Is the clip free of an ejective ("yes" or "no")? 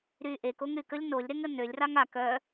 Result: yes